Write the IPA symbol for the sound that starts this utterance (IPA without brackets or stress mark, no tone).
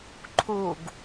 ǃʰ